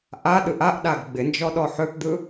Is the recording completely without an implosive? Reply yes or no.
no